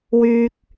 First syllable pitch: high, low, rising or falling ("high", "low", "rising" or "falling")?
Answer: high